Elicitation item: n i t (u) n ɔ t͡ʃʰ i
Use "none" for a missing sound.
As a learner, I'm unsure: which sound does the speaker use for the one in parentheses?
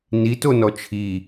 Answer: o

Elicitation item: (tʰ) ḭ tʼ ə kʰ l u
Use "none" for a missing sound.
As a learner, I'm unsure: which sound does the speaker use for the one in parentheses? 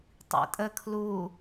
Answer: tˤ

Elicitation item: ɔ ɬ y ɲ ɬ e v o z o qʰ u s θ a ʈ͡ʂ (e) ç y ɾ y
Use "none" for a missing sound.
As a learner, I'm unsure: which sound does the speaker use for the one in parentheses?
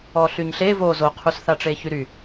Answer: e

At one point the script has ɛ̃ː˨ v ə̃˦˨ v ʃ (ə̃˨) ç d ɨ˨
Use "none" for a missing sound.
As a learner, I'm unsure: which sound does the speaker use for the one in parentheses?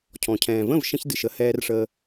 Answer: ə̃˦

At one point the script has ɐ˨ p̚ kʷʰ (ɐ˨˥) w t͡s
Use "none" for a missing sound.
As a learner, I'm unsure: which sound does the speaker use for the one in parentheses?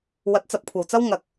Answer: ɐ˨˩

